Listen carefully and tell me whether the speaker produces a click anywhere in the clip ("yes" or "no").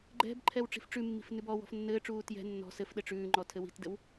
yes